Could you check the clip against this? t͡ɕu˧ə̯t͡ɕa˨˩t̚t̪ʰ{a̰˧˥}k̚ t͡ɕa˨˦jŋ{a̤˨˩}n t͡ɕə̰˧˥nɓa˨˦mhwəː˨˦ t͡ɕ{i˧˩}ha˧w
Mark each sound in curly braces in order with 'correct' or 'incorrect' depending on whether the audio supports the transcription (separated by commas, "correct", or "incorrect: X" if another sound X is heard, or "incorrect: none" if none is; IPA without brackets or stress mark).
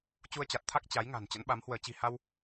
incorrect: a˦˥, correct, incorrect: i̤˨˩